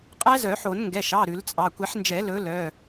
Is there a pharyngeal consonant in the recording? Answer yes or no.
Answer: yes